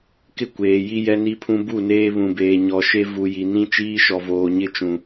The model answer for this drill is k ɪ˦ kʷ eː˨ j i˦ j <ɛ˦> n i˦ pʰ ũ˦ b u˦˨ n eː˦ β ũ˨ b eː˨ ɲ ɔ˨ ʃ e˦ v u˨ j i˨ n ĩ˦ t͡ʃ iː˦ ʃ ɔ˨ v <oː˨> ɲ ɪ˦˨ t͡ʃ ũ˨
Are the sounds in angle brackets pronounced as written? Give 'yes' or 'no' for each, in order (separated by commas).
yes, yes